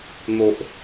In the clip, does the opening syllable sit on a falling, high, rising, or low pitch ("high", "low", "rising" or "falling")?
low